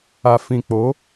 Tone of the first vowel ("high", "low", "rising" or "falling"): low